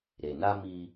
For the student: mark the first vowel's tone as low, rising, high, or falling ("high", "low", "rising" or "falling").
low